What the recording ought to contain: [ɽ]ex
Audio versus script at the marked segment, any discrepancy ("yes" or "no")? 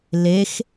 yes